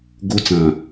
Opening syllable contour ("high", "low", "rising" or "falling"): high